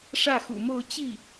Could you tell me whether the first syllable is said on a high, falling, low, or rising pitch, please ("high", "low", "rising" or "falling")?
falling